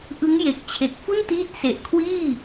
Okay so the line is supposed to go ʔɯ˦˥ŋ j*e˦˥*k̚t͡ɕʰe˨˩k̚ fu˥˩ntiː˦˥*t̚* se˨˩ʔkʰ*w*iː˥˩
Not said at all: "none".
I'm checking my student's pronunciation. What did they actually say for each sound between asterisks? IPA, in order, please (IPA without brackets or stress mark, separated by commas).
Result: e˨˩, t̚, w